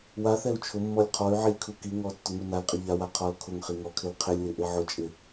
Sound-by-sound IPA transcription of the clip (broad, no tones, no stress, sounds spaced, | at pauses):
w a θ ɛ u̯ t͡ʃʰ ʊ mː ɔ lʲ qʰ ɔ y̯ ʕ i lʲ kʰ u k i ŋ ɔ tː ʊ ŋ u n a l qʼ ɪ ʎ a w a qʰ ɔ l kʰ ʊ ŋ χ i ŋ ɔ kʰ ɪ l qʰ ɪ lʲ w ɪ ʔ e ʕ ʊ t͡ʃʼ ɪ